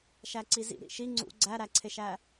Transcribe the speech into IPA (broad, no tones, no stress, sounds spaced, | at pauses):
ʃ æ ǀ i z ḭ ɾ ḭ ʃ i ŋ͡ǀ ṵ ɡ͡ǀ æ ɾ æ ǀʰ e ʃ æ